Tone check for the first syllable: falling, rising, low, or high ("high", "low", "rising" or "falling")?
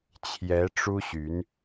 rising